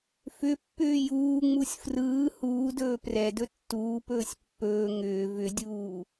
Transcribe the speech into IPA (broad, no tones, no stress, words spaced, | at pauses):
fʏpːʏː juːŋ͡musʲ frɯː huːdɵː prɛdɵ tːuːpɵːsʲ pːɵː ŋʏː vʏdʲuː